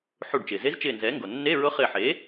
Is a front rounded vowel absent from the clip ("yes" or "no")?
yes